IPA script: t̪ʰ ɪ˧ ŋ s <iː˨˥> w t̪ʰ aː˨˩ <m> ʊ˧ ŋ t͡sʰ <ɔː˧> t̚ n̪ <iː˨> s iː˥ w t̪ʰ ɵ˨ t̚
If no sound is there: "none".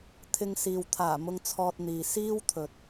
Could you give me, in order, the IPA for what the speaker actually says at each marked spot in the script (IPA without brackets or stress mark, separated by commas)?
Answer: iː˨, m, ɔː˧, iː˨